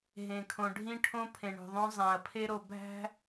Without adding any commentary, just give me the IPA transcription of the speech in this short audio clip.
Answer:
ɦẽ˨kʰõ˨ ɖʱĩ˦ʈʰõ˦ pʰẽ˨ɳo̤˨ðˤõ˦ zˤæ̃˨ɐ̯ pʰe˦ɾo˨ bʱæ̤˦

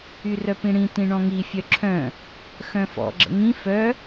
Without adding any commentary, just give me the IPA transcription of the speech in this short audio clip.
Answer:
yrœpĩɽĩ tĩɳɔ̃ŋi fʲœǁʰœ̃ | xœ̃fɔ̰ ɡ͡ǁə̰ŋĩ fœ

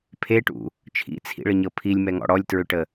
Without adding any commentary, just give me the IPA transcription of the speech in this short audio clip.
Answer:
pʰeʈṵ | t͡ʃʰḭt͡sʰḭɭəɲɤ pʰilʲmɛŋɔ̰ ɽɔlʲtɹʏʈə

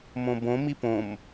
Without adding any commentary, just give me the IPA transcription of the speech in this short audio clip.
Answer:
mõbõ mipõm

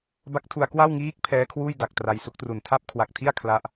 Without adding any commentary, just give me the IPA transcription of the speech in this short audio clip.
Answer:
ba˦˥k̚tʰu˧a̯ kwa˥˩wŋiː˦˥k̚ pʰɛː˦˥kʰwuː˥˩jda˨˩k̚ tra˧jsu˦˥k̚tru˨˩n tʰa˥˩p̚kʰwa˨˩k̚tʰi˥˩a̯ kʰla˦˥ʔ

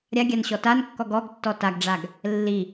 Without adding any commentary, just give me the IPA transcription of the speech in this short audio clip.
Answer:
ɾʲaɡʲan ɕɔtankːɔɡ ɔɡtːɔ taɡɖ͡ʐaɡ | lːi

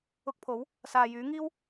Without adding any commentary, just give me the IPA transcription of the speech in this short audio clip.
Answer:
ʊ˧k̚pʰo˨˥w | saː˨jyː˨˥ŋiː˥w

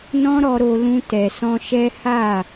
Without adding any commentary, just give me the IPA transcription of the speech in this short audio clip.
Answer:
nɔ̃˦ɾɔ˧ɾo˧ lũ˧tɛ˨sɔ̃˧ʃɛ˦ ha˦˨

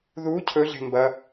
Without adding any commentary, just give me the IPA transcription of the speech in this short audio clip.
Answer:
ðu cʰɵɮe̤ mbɐ

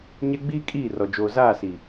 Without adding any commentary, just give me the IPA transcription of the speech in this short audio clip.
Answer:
ɲɛ˦ ɡ͡biː˦ kʼiː˦˨rɔ˨ d͡ʒoː˨ zaː˦˨si˨

